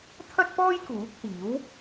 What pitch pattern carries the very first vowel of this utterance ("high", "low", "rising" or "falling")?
high